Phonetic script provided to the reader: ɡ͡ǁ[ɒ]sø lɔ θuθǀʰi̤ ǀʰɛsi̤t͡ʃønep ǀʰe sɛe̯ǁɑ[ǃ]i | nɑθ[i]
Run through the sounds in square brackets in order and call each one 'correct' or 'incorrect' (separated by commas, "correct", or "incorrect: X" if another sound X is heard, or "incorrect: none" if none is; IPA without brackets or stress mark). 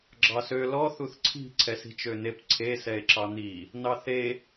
incorrect: ɑ, incorrect: n̪, incorrect: e